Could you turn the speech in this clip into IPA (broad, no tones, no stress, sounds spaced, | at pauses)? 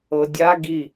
ɤ dʲ a ɡ i